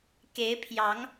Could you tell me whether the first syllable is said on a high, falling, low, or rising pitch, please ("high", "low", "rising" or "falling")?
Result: rising